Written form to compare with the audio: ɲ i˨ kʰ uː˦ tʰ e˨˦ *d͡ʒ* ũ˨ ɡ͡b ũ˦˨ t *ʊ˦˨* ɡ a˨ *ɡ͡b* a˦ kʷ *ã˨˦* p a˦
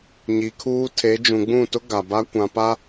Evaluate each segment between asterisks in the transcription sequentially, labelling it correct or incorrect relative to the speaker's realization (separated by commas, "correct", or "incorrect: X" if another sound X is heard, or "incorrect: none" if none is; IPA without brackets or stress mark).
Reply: correct, incorrect: ʊ˦, incorrect: b, incorrect: ã˨